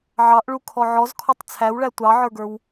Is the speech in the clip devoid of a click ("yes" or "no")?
yes